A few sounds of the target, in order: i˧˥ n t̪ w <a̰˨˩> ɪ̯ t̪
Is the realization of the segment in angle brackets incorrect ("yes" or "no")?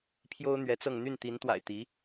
no